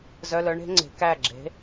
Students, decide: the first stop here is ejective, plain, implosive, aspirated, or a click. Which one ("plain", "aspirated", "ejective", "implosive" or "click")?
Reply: click